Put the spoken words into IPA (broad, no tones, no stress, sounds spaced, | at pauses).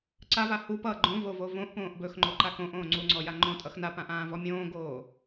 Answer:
ǀ a v a h u p ʌ ɡ͡ǃ õ v o v o v õ ʔ p õː ʔ b ɵ x ŋ͡ǃ o ǃ a k õ ʔ õː ŋ͡ǀ u ŋ͡ǀ ɔ j a ŋ͡ǃ õ tʼ ʌ x n a p ã ʔ ãː v ɔ mʲ õː ɡ oː